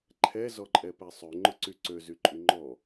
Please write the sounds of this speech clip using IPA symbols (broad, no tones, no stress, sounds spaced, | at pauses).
ǃʰ ɛ z ɔ ǃʼ ɛ p ɛ sˤ ø ŋ͡ǃ ʊ ǀ y ǀ ø z y ǃʼ y ŋ͡ǃ ɔ